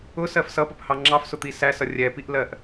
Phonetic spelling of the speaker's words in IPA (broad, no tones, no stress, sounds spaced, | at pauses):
ʊ s ɜ f s ʌ p ə p h ɑ ŋ͡ǁ ɑ f s ʊ t̪ i s æ s ʌ rʲ ɛ p i ʔ l ɜ ʔ